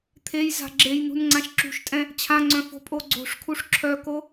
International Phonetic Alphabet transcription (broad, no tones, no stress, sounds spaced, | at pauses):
t̪ʰ e j z a̤ ɡ͡ǁ e j n ṳ n ŋ͡ǀ ã ʃ ǁ ṳ ʃ tʼ ɛ̃ | t͡ɕʰ ã ŋ͡ǀ œ̃ f o̤ pʼ o ɡ͡ǀ o̤ ʂ kʰ u ʂ ǁʰ œ k o